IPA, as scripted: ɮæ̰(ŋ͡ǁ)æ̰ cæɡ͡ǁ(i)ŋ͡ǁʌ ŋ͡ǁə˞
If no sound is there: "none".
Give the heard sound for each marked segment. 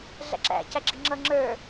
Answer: ǁ, i

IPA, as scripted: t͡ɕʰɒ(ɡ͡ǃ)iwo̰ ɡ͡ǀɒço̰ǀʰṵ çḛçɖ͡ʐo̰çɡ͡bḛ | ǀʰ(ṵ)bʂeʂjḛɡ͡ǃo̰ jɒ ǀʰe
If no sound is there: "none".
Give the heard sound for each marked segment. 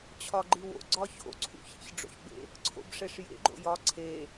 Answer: ɡ͡ǃ, o̰

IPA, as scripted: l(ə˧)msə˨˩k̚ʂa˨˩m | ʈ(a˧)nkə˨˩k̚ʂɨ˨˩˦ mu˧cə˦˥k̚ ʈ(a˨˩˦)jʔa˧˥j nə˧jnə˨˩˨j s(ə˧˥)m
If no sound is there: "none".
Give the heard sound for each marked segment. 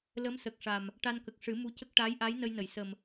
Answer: ə˧˥, a˧, a˧˥, ə˨˩

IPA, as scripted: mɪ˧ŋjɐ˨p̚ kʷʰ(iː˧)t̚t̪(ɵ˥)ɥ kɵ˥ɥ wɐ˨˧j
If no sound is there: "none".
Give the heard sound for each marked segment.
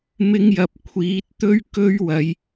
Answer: iː˨˥, ɵ˥

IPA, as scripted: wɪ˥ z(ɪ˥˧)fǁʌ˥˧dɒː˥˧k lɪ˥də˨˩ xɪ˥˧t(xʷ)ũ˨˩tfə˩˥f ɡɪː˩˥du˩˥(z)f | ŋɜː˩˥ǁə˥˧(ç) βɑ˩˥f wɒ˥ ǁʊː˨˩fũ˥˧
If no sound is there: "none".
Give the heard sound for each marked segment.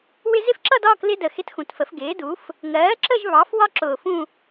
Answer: ɪ˥˧, x, none, ʒ

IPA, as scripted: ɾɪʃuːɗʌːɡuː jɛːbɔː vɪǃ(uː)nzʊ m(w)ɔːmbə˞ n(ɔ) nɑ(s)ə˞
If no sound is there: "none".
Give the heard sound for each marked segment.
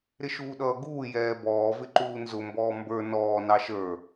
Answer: uː, b, ɔː, ʃ

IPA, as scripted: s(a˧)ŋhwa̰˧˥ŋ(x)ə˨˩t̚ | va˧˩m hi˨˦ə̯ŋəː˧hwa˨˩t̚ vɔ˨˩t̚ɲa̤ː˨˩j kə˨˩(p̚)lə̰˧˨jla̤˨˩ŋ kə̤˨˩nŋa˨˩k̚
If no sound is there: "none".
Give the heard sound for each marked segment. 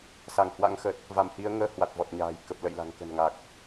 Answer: a˧˩, x, p̚

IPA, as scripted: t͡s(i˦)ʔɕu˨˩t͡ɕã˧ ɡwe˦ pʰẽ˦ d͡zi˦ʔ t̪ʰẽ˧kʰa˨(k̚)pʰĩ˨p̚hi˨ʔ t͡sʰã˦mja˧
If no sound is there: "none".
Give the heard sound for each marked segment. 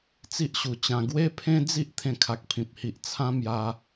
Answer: i˦, k̚

